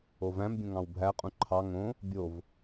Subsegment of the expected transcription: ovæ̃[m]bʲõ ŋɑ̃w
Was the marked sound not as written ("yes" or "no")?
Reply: no